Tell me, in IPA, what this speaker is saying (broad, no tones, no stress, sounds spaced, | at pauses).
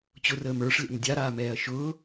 t͡ɕ ʊ r əː m ə˞ ʂ lʲ a̰ m dʲ a ɾ aː m ɛː ɐ̯ ʃ ʊː